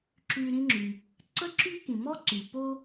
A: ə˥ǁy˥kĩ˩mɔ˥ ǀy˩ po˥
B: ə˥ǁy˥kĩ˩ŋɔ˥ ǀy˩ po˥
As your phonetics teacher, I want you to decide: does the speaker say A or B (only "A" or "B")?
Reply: A